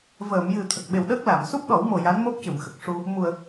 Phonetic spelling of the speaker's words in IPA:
v əː˨˩˨ m j ɨ˨˩ t̪ʰ ə˨˩ k̚ ɓ e˨˩ w ɗ əː˦˥ k̚ l a˨˩˨ m s u˦˥ p̚ ɗ ɔ˨˩˦ w m o˨˩ j a˧˥ n m o˦˥ p̚ c ɨ˨˩˨ m x ə˨˩ k̚ ʂ u˧ | m u˨˩ ə̯

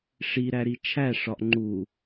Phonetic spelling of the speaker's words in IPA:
ʂ i ɾ æ ɾ i t͡ʃʰ æ ʂ ɒ ʔ ŋ͡ǃ u

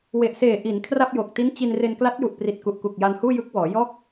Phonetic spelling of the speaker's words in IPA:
w e˨˩ ʔ s eː˨˩ ʔ i˩˦ n kʰ r a˥˩ p̚ j o˨˩ k̚ t i˦˥ n t͡ɕ i˧ n r e˧ n k l a˦˥ t̚ j u˨˩ ʔ p r i˨˩ t̚ k u˨˩ ʔ k u˨˩ k̚ j a˧ n h uː˥˩ j ɯ˦˥ k̚ w ɔː˩˦ j ɔː˥˩ k̚

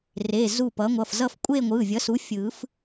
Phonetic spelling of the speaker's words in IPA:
r e˩˧˩ z u˧˩ p ʌː˩˥ ŋʷ ʌ˩˧˩ f z ʌ˥˧ f kʷʼ eː˥˧ ŋʷ ɯː˩˧˩ vʲ ʌ˩˥ s u˩˥ fʲ ɯː˨˩˦ f

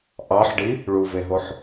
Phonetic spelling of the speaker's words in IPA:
ʔ ɑ ħ ɖ i | ɭ u v e ɦ o ħ

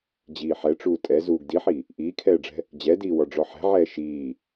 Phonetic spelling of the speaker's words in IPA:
d͡ʑ iː ħ ɛ ʈ͡ʂ uː tʼ ɛ z uː ɡ d i ħ i | ʔ iː kʰ ɛː ɖ͡ʐ ɛ̤ | d͡ʑ ɛ d iː w ɔ ɖ͡ʐ ɔ ħ ɛ̤ ʕ ɛː ʃ iː

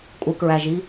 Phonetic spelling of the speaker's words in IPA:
kʷʼ ɪ k ɹ æ ʒ i

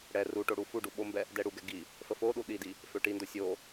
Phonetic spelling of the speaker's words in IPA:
ɽ ɛ r u ʈ o ɽ u f u ɖ u ɓ o m b ɛ | d ɛ ɽ u ɡ ɛ ɡ i | f ə f o ɗ u ɗ i d i | f ø ʈ i n d o sʲ o

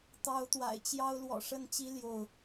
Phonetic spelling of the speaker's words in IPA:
t̪ ɑ˨˦ ʊ̯ t̪ w a̰˨˩ ɪ̯ t͡ɕ j ɑ˦ ʊ̯ l w ɔ̰˨˩ ʂ ə˥˨ n t͡ɕ i˦ l j o˥˨ ʊ̯

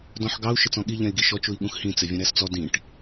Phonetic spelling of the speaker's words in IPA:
d ɔ̃ ħ ɡ ɑ u̯ ʃ ɪ t͡s ɔ̃ ɠ i ʎ ɛ̃ i̯ ɡ i ʃ ɔ t͡ʃ u i̯ ɠ ũ x h ĩ t͡s ɪ vʲ ũ ɾ æ s t͡s ɔ d ĩ ʈ

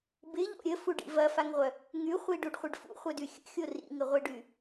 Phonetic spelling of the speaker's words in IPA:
b ɪ ʎ o̰ ɾʲ ə f u ɖ ḭ v ɐ f a ŋ ʁʷ œ | ŋ y χʷ i ɖ u ɖ χʷ ɪ ɖ f ṵ χʷ œ d y xʲ ə̰ xʲ o r ḭ ŋ ɪ ʁʷ i ɖ y

